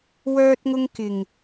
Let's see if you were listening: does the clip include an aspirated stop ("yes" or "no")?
no